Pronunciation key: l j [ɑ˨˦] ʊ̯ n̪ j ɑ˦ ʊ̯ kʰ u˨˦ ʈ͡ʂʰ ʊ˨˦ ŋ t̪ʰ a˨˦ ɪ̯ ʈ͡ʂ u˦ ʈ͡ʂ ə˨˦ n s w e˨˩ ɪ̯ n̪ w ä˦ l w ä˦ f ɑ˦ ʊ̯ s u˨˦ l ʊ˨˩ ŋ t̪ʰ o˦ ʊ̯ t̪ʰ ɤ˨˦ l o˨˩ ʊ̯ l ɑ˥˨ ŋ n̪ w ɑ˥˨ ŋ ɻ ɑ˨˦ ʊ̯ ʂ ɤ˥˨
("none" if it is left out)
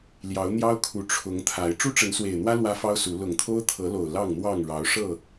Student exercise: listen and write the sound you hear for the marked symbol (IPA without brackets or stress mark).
ɑ˨˦